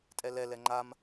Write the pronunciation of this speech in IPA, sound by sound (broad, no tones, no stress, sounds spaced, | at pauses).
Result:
tʼ ɛ l ɛ l ɛ ŋ͡ǃ a m